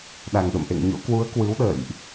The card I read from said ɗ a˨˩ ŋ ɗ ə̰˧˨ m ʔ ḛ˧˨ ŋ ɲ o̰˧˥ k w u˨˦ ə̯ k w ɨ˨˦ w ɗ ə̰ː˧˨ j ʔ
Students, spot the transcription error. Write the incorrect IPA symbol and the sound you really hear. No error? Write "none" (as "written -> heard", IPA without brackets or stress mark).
none